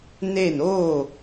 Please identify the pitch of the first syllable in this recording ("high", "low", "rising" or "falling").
falling